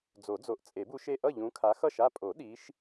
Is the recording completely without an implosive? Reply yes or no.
no